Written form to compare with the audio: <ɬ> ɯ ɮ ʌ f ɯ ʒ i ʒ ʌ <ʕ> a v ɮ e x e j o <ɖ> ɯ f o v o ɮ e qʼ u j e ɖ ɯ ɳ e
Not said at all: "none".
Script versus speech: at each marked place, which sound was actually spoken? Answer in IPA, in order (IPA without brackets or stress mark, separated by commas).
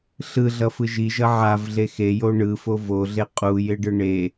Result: ɬ, ʕ, ɳ